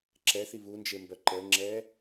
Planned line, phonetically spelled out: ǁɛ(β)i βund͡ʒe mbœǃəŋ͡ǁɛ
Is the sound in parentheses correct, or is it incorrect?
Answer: incorrect